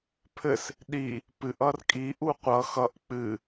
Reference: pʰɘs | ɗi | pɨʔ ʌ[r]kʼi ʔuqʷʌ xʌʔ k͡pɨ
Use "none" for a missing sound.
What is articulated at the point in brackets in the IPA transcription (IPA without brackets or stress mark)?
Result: r